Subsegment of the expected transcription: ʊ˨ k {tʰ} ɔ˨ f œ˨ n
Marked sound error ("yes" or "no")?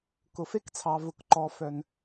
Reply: yes